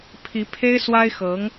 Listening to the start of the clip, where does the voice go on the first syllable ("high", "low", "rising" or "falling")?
rising